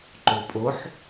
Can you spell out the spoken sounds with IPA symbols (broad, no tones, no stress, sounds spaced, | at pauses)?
ǃ o pʼ o ħ